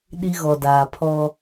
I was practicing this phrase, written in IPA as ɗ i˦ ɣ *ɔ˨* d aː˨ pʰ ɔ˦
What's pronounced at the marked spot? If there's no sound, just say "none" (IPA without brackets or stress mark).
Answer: ɔ˨